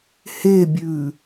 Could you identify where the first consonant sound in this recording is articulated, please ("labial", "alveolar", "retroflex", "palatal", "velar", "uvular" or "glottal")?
glottal